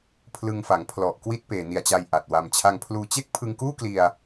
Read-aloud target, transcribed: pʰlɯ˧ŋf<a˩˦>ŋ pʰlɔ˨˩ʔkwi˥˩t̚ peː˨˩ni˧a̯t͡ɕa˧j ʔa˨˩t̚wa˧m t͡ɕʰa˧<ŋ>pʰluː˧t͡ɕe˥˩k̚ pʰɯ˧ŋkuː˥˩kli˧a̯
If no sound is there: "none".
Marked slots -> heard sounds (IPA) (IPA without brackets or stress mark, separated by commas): a˩˦, ŋ